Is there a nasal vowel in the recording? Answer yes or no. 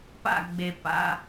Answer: no